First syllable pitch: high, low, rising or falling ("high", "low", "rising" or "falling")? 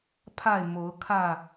falling